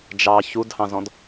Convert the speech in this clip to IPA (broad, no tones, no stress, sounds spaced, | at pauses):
d͡ʒ ɑ ç u d h ɑ̃ z ɔ̃ d